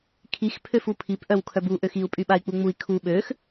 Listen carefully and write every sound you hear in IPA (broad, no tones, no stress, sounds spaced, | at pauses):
kʰ i x pʰ ø f u pʰ i p ʔ œ w kʰ œ b u ʔ ø x i u̯ pʼ y ɓ a i̯ k͡p u ŋ͡m u i̯ kʰ u ɓ ø x